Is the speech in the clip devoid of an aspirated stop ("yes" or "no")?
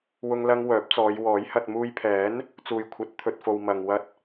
no